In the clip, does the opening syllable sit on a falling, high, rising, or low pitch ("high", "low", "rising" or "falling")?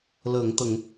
low